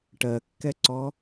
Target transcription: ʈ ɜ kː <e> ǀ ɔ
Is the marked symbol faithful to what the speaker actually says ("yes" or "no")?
no